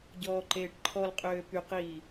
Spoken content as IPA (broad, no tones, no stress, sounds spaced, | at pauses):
ɟ ɔː ǃ eː ʈ ǃʰ ɔ l qʼ øː p y q iː